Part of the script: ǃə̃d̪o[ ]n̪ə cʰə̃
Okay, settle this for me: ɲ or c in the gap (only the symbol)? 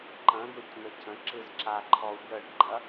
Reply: c